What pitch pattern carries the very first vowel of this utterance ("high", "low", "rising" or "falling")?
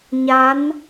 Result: rising